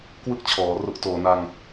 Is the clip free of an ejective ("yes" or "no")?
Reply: yes